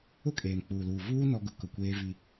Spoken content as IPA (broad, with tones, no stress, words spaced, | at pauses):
ʊ˦˨kʼeː˨mk͡puː˨luː˨ vuː˦ nɔ˦ɡʊ˦ kʊ˨kʷeː˦vi˦